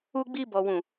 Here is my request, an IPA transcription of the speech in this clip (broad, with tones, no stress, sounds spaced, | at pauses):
u˦ ɡ͡b i˦ b ɔ˦ w ũ˦˨